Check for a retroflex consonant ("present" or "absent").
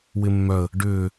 present